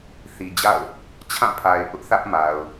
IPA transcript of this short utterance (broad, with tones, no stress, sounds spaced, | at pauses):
θ i˨ d͡ʑ a̰˦˨ ʊ̯ | t͡ɕʰ ã˦˨ pʰ a˨ ɪ̯ ʔ ʊ˦ ʔ θ ä˦ ʔ m a˨ ʊ̯